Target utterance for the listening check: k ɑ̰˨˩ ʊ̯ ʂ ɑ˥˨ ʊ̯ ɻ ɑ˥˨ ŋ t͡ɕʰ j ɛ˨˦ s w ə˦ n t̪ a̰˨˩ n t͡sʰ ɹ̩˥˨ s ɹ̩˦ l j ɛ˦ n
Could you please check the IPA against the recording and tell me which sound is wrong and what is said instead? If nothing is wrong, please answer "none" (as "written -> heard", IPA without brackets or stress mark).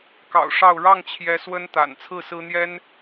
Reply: l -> n̪